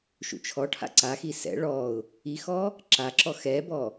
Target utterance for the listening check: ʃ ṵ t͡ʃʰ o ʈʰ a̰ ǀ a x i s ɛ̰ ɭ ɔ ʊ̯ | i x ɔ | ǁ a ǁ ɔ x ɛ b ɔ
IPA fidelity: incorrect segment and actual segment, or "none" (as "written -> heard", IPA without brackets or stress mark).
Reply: o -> ɔ